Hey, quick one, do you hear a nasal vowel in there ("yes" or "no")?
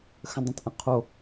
yes